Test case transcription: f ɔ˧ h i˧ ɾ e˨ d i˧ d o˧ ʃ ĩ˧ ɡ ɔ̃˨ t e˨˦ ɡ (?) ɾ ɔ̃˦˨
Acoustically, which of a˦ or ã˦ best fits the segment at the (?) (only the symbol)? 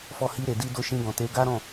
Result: a˦